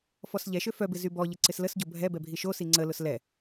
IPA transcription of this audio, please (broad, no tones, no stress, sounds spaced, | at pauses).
f ɔ s ʎ ɛ ʃ ø f œ b ɪ z y b ɔ ʎ ɪ ǀ ɪ s l ə s ɟ o bʱ ɛ b ɛ bʱ i ʃ o s i ŋ͡ǀ ə l ʊ s l ɛ